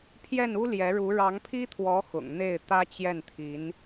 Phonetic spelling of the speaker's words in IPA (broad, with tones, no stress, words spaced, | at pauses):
pʰjɛ˥˩nu˥ ljɛ˧˥ɻu˧˥ ɻɑ˧˥ŋpʰi˥t̪ʰwɔ˧˥ xʊ̰˨˩ŋ n̪e˥˩ɪ̯t̪ä˥ t͡ɕjɛ˥˩nt̪ʰi˧˥n